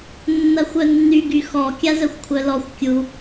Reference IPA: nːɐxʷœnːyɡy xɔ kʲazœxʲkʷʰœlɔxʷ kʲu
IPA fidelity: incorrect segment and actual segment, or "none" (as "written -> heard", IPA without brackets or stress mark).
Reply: xʲ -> xʷ